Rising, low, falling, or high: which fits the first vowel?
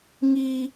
high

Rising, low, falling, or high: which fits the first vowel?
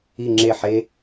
falling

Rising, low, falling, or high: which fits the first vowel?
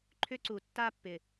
high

